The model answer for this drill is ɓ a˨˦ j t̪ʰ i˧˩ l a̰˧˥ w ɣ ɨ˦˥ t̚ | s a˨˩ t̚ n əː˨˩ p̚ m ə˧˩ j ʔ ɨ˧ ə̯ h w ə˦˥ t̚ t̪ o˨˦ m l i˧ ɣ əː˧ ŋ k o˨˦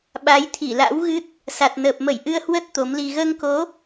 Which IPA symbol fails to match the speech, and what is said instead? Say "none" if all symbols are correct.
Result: none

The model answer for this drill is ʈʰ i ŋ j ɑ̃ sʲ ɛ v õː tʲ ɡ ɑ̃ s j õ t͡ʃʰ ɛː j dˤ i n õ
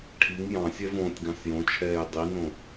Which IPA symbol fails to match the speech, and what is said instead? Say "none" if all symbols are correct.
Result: none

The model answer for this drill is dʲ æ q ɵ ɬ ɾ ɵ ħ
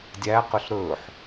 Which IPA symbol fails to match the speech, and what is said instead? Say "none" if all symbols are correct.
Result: none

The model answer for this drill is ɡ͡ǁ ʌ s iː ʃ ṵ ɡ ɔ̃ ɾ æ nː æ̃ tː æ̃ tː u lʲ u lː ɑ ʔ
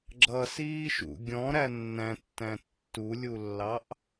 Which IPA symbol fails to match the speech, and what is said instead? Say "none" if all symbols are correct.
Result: ɡ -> ɡʲ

